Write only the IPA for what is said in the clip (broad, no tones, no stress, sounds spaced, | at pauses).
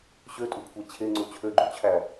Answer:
ɕ ø tʼ u kʷʰ æ t͡ɕʰ e ŋ͡ǀ u t͡ɕʰ ø ɡ͡ǃ u t͡ɕʰ æ